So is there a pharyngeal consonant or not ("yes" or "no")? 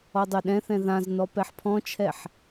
yes